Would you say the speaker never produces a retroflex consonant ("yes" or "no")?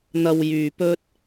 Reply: yes